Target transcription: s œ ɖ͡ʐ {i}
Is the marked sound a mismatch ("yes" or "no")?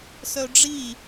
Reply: no